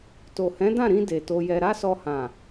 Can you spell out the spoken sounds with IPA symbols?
to˨hɛ̃˨˦dã˦˨ɾĩ˧ de˨to˧jɛ˧ ɾa˦sɔ˧hã˨

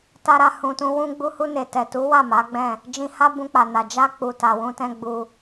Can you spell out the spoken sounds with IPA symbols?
ta˧ɾa˧ hũ˨tũ˧ wũ˧ɡ͡bu˧hu˧ ne˨tɛ˨tu˨˦wa˦˨ ma˨˦ ɡ͡bɛ̃˦˨ | d͡ʒĩ˧ha˦ bũ˧k͡pa˨na˨ d͡ʒa˧k͡pu˨ ta˨wũ˧tɛ̃˦ ɡ͡bu˧

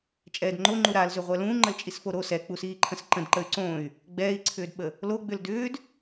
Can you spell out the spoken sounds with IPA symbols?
t͡ʃʼɛːdŋ͡ǃo ŋ͡ǃuɾalzʏ ʁʷɛlũːŋ͡ǃəl t͡ʃʼisfoɾo sɛk͡pusiːǃʰə̃s ǃə̃d ǃəy̯ǀõy̯ | ɡ͡bɛːi̯ǀʰʏːdɓə | loɡ͡bʏl dʏːd

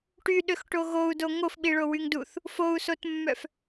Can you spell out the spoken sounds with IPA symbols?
ʈyɗøxʈo ɣou̯do ŋofɓiɭowyŋ duθ | fou̯sotmːœf

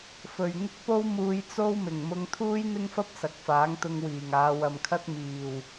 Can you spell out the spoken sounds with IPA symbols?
fɵ˨ɥ ŋɪ˥k̚po˥wmuː˧j t͡so˥wmɪ˨˩ŋ mʊ˥ŋ t̪ʰuː˥jn̪ɪ˥ŋfɐ˥p̚ sɐ˨k̚faː˨˥ŋt̪ʊ˧ŋ wiː˨˩ŋaː˨˧wɐ˨mkʰɐ˥t̚ miː˨˩w

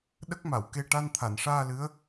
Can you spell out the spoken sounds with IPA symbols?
ɗə˦˥k̚ma˨˩˨wke˧ ʈa˧nt̪ʰa˨˩˨nʂaː˧ lɨ˧˥ə̯

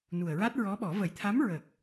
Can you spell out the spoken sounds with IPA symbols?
nu˨˩ə̯ɹa˦˥t̚ɹɔ˧˥ɓɔ˨˩˦ və˨˩˨jt̪ʰa˧˥mɹəː˨˩k̚

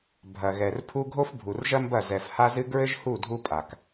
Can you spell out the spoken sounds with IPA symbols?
bʱɐ˨ɣɛ˨rpʰu˦ ɡʱo˦fbʱu˨rʒɐ˦mbɐ˦˨ zɛ˨f ha˦zɨ˦ ɡɹɘ˦ʒhu˦˨ dʱu˦pʼa˨k

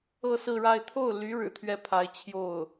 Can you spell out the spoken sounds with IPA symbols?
ɤ˥˧sɹ̩˥˧ɻa˥˧ɪ̯ t̪ʰo˥˩ʊ̯ly˧˥ ɻɻ̩˨˩t̪ʰɥɛ˥˩pʰa˧˥ɪ̯ t͡ɕʰjo˥˩ʊ̯

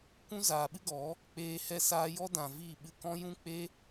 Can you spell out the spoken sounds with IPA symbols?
kʷũ˦zaː˨ɓɨ˦ɡɔ˨˦ | k͡peː˧ hɛ˦ saː˦ jɔ˦ dã˨viː˦˨ ɓɨ˧kɔ̃˦ jũ˦k͡pe˦

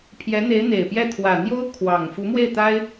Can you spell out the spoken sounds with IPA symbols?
pʰjɛ˧˥n̪e˧˥ɪ̯ n̪e˨˩ɪ̯pjɛ˥˩ t̪ʰwä˨˩n̪jo˥ʊ̯ kʰwɑ˨˩ŋ fu˧˥mwe˥˩ɪ̯t̪a˥ɪ̯

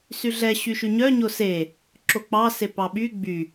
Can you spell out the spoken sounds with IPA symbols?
syɮɛ ɕyʃyɲœɲo se | ǁok͡pɑse pɑɓy ɡ͡by

